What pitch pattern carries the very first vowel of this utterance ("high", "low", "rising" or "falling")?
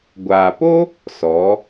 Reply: low